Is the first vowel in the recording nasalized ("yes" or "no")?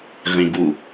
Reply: yes